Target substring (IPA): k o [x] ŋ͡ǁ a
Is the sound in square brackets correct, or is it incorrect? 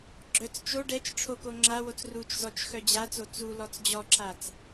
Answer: incorrect